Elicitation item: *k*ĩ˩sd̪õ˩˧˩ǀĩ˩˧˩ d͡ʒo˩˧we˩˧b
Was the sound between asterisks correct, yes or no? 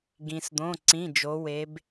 no